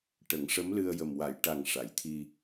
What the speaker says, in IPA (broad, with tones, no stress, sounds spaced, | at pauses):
ʈ ə˨˩˦ ŋ ʂ ə˧˥ m l ɨ˧ ə̯ j ə˨˩ m w a˨˩˨ j ʈ a˨˩ ŋ ʂ a˨˩˨ j t̪ʰ i˧